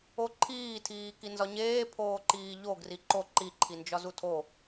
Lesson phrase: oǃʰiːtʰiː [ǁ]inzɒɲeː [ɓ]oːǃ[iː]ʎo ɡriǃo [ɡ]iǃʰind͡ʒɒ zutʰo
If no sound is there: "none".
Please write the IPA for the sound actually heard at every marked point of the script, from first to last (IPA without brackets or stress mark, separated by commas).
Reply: k, pʰ, iː, ǃ